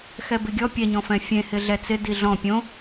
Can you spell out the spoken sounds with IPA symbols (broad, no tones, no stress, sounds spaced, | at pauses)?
x ɛ b ɪ ɡʲ ɔ pʲ ɛ ɲ ɔ̃ f ɛ̃ fʲ ẽ h ɪ ɮ ɛ t͡s ɪ d i ɮ ɔ̃ pʲ õ